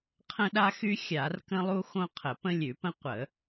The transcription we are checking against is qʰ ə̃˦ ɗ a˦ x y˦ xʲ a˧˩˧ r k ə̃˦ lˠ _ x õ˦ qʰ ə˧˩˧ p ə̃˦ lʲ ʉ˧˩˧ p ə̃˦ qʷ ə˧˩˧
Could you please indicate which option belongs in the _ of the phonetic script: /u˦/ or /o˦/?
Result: u˦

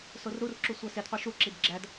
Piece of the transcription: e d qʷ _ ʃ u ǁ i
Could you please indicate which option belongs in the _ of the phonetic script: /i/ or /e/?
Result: i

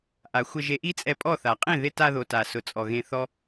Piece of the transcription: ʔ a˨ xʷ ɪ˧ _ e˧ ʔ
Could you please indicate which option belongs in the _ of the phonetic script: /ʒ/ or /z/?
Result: ʒ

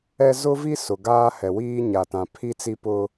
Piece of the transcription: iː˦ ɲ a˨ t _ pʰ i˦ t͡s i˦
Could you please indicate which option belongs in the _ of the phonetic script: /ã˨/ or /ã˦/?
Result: ã˨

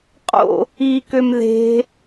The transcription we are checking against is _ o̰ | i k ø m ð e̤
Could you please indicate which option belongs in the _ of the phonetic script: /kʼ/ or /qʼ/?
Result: qʼ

